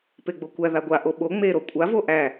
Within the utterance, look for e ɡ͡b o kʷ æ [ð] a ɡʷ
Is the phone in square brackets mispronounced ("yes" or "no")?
no